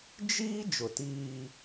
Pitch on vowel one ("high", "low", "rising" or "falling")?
high